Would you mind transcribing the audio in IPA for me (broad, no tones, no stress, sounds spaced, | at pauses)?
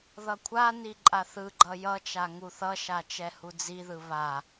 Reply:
ð ʌ kʷʰ a n i ǃʼ a θ ɯ ɡ͡ǃ ʌ j ʌ t͡ʃ a ŋ u θ ʌ ʃ a t͡ʃ ɛ h u d͡z i ð ɯ β a